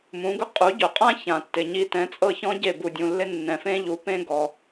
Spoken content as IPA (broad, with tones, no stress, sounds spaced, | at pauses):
m ũ˩˥ ɡ ʊ˥ qʼ u˩˥ ɟ ʊ˩ qʼ ã˥ ç ã˩ tː ɪ˩ ɲ i˧ t ɛ̃˩˥ t͡sʼ ɤ˥˩ ç ɔ̃˥ ɟ e˥˩ b u˩ dʲ ũ˩ lː ɪ˥ nː ɛ̃˩ f ẽ˥ ʎ u˩˥ p ẽ˥ ɡ ɔ˩